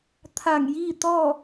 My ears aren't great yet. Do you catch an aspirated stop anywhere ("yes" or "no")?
yes